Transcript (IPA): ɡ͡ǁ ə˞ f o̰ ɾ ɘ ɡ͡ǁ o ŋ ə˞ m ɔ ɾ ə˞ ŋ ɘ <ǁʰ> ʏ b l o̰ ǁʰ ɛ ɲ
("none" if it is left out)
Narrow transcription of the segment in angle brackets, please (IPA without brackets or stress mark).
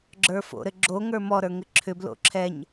ǁʰ